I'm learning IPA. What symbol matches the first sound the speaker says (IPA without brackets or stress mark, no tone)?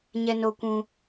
ɲ